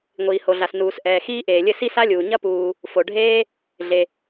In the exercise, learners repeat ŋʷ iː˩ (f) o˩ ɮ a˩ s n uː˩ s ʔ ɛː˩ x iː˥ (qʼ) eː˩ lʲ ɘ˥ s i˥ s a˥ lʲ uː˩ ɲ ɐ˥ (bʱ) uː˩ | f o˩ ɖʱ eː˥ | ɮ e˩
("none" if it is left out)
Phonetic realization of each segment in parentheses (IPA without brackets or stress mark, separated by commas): h, ʔ, p